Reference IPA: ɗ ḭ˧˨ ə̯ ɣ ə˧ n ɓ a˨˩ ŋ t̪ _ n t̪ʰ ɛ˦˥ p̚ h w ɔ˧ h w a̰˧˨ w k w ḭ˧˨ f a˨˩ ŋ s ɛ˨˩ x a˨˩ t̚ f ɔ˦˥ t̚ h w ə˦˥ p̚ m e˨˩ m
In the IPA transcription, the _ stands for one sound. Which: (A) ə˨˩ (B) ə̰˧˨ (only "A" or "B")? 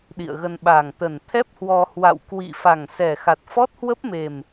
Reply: A